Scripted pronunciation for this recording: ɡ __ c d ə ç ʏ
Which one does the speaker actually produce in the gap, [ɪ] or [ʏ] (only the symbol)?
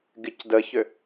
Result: ɪ